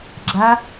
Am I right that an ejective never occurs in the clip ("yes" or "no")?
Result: yes